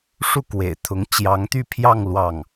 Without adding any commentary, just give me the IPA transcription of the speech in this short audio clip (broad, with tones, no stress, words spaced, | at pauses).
ʂu˥˩kwḛ˨˩ɪ̯t̪ʰʊ˧˥ŋ t͡ɕjɑ˧˥ŋt̪y˥˧pʰjɑ˥˧ŋ lwɑ˥˩ŋ